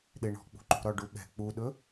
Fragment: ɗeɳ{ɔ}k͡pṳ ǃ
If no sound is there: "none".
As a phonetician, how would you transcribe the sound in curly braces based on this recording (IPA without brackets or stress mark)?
ɔ̤